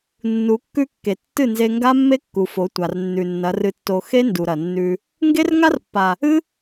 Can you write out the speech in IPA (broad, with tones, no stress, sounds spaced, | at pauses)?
nː u˨˦ kː ʉ˦ kː e˨ tː ɨ˦˨ n z e˧ ŋ ɡ a˦ mː e˦ kː u˨ f o˨˦ tʷ a˨ r nː ʉ˨ nː ɐ˨˦ r ɨ˧ tː o˧ x e˦ n d u˨ ɾ ɐ˨ nː ʉ˧ | ŋ ɡ e˦ r ŋ a˦ r pː a˨ | ɨ˦